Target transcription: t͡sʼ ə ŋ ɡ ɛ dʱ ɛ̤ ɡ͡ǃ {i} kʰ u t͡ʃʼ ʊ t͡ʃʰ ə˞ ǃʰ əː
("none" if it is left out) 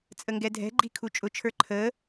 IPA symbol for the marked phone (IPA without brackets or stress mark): i